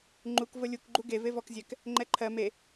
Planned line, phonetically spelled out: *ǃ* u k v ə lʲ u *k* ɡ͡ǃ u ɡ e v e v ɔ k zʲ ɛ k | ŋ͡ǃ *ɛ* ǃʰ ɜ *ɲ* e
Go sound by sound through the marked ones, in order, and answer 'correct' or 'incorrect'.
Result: incorrect, correct, correct, incorrect

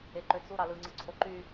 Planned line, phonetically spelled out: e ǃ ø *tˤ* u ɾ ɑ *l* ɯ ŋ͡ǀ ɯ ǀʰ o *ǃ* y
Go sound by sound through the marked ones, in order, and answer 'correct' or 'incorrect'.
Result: incorrect, correct, correct

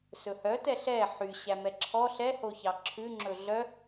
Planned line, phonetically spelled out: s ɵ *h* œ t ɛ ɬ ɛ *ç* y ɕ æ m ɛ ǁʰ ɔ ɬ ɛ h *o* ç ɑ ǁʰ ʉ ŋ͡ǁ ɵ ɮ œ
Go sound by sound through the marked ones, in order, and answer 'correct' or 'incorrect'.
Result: correct, incorrect, correct

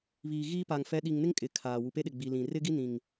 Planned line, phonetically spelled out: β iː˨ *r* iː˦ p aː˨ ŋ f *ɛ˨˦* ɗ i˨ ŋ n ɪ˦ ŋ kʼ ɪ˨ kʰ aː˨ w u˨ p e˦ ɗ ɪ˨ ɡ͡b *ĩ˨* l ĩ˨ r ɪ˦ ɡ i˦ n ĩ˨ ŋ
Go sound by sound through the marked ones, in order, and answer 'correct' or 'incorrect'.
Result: incorrect, correct, incorrect

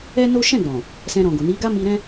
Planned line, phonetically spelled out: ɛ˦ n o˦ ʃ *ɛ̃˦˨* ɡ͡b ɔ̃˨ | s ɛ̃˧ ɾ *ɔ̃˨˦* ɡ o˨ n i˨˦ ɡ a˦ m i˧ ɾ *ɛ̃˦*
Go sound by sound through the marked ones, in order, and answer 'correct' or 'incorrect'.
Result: correct, incorrect, correct

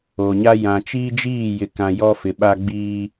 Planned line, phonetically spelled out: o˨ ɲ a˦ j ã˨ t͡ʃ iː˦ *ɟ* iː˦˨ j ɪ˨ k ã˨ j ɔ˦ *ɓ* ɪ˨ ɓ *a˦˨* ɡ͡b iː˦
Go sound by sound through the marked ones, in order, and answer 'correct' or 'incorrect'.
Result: incorrect, incorrect, incorrect

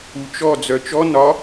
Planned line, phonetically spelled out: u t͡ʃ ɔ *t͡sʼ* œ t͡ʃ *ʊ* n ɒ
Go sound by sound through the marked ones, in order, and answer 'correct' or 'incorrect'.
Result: incorrect, incorrect

